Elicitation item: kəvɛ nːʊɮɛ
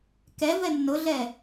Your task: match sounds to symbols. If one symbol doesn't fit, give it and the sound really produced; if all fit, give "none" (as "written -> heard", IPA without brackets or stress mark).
ə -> ɛ